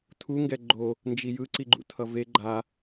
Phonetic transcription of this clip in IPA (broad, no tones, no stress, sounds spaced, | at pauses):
tʰ u ŋ ɡ ɛ ɡ͡ǃ o | n d͡ʒ i j ɯ ǀ i ɡ͡ǃ ṵ tʰ ʌ v e ɡ͡ǃ a